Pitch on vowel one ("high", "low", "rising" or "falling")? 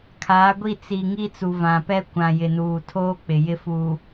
rising